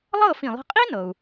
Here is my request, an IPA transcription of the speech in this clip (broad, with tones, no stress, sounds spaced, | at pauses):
lˠ ɤː˥˩ f ĩ˩ lˠ i̤˧ qʼ i˥ n ɤ˩ u̯